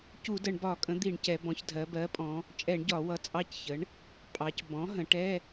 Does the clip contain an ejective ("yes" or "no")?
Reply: yes